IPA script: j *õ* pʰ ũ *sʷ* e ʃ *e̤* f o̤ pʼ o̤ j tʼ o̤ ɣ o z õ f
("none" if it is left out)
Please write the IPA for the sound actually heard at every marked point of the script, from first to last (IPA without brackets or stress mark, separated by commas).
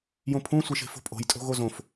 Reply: õ, sʷ, e̤